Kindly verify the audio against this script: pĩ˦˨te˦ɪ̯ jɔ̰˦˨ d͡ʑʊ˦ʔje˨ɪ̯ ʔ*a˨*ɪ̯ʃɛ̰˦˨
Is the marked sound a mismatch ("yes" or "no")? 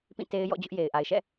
no